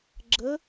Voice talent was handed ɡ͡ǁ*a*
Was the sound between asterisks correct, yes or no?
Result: no